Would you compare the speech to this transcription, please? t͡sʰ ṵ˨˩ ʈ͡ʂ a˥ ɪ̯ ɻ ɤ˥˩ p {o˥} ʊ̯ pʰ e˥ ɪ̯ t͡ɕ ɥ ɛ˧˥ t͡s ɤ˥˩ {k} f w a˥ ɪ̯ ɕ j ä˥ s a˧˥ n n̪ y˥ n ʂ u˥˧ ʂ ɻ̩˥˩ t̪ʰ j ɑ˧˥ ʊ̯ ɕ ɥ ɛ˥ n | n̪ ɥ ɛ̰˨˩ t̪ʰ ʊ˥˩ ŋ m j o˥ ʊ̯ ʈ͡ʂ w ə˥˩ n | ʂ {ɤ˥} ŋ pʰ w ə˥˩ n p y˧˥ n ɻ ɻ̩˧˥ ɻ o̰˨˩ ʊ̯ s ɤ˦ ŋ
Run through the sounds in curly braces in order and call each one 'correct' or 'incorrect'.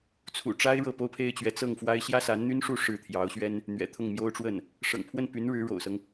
correct, incorrect: ŋ, incorrect: ɤ̰˨˩

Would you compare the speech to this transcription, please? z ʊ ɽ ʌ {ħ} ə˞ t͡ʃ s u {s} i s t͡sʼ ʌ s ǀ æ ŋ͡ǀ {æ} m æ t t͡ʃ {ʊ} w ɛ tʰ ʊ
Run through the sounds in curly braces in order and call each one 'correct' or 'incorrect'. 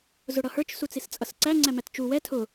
incorrect: h, incorrect: t͡s, correct, incorrect: u

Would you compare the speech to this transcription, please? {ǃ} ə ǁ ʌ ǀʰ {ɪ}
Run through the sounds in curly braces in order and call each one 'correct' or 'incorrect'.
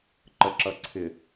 correct, correct

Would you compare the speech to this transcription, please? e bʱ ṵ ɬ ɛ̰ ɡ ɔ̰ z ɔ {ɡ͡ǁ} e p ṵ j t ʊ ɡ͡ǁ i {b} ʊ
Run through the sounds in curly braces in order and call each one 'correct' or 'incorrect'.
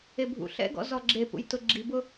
correct, correct

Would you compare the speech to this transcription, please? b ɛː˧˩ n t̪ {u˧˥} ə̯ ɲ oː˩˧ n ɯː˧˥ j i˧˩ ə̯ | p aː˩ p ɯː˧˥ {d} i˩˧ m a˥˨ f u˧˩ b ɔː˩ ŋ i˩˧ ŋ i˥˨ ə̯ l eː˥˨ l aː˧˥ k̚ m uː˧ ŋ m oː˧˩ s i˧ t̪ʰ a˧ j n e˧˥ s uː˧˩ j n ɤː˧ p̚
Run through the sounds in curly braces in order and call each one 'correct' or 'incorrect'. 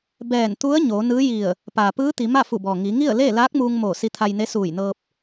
correct, incorrect: t̪

